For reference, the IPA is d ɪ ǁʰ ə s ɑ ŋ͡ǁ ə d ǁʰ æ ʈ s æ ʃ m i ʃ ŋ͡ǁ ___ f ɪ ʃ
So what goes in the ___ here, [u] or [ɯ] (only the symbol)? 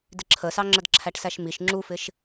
u